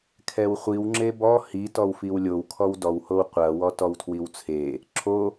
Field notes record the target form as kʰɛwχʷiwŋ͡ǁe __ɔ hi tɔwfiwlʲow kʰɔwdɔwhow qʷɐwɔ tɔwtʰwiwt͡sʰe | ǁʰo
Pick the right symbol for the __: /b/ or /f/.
b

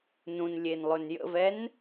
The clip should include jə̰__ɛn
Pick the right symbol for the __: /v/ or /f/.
v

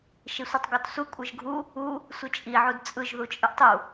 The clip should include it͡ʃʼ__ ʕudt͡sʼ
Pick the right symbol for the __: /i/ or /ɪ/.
i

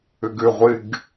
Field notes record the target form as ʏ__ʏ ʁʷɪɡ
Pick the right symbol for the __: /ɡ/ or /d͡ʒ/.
ɡ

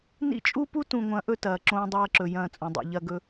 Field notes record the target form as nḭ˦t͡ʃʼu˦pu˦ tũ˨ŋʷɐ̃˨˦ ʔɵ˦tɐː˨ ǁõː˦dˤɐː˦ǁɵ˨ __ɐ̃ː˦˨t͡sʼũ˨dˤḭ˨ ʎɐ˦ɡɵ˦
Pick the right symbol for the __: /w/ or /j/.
j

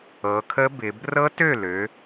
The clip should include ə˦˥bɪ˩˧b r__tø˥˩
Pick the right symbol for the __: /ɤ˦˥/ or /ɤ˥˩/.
ɤ˦˥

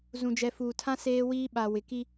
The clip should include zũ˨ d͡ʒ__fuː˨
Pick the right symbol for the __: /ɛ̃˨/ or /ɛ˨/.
ɛ˨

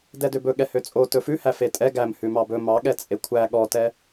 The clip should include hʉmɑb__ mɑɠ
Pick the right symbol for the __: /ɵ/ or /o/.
ɵ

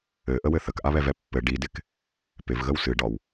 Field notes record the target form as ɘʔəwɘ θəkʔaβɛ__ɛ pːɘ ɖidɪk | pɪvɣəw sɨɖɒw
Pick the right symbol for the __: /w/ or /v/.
v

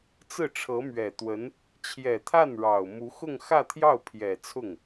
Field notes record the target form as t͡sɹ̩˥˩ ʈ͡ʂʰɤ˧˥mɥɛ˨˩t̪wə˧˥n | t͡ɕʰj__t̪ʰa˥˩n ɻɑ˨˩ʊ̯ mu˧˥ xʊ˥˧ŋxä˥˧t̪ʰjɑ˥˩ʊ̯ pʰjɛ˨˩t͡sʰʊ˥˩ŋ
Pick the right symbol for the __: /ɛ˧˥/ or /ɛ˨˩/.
ɛ˨˩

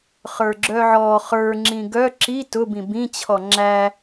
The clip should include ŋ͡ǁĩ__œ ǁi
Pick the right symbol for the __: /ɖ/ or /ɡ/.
ɡ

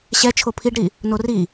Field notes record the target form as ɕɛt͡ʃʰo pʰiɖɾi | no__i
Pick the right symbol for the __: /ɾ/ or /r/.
r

